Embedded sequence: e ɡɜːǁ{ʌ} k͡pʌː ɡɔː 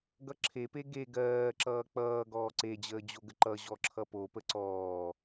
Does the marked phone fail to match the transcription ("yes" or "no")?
yes